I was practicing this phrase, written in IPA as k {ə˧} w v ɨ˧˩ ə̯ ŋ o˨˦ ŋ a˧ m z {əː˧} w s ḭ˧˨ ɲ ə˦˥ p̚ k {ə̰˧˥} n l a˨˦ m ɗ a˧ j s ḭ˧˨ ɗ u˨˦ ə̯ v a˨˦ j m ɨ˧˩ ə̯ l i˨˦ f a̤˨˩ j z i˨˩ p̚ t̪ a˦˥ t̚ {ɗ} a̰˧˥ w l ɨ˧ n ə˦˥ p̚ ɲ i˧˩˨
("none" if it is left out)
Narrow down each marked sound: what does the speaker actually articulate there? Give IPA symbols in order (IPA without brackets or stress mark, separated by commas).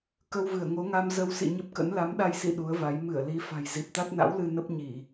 ə˧, ə˧, ə̰˧˥, n